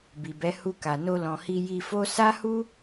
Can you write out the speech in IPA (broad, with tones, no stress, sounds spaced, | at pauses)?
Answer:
b i˨ b ɛ˨˦ h u˧ k a˨ n o˧ l ɔ̃˨ h i˧ j i˧ f o˦ s a˦ h u˦